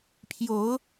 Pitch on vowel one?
rising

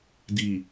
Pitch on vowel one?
low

